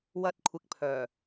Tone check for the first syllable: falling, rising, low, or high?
high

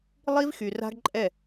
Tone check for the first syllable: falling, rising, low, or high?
high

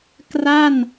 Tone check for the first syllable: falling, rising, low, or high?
falling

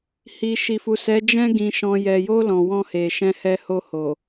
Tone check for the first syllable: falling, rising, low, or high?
low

